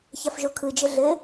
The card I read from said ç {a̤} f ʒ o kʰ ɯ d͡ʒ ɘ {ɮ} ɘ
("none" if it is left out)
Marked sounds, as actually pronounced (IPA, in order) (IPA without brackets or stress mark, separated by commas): a, ɮ